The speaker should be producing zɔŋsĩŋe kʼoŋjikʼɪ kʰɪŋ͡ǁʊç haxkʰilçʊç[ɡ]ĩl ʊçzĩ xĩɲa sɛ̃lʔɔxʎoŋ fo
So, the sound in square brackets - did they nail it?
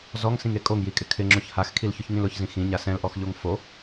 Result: no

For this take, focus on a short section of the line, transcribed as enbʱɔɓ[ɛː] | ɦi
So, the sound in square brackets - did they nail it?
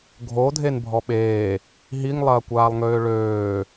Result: no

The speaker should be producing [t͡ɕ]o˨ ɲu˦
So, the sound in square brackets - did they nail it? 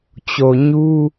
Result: yes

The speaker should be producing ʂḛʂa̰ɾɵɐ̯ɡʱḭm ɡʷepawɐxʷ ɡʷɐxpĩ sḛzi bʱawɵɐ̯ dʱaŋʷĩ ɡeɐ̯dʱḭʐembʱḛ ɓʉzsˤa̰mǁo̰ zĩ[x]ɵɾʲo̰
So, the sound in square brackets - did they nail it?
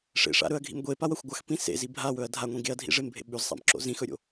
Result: yes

